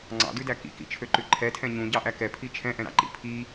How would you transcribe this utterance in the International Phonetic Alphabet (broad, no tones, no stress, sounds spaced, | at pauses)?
ŋ͡ǀ ɑ̰ d ʉ d æ k ḭ k ḭ t͡ʃʰ ø ǃ ʉ ǃʰ ɛ tʰ ɛ̃ ɲ ũ ɟ ɑ ʔ æ k ɛ pʰ i t͡ʃʰ ɛ̃ ʔ ɛ̃ ɾ ɑ̰ ǃ ḭ pʰ i